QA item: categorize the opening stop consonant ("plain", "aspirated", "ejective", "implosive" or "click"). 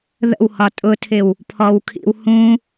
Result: ejective